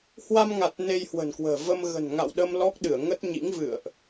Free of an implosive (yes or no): no